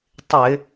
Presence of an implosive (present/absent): absent